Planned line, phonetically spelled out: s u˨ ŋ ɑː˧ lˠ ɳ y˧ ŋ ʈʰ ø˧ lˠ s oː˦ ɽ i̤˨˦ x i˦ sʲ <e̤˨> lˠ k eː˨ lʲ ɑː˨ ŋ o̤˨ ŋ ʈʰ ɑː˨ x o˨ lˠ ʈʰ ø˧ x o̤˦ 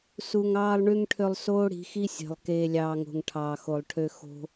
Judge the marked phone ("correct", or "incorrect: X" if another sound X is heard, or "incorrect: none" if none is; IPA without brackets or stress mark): correct